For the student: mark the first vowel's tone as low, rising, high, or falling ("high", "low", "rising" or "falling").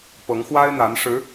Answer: rising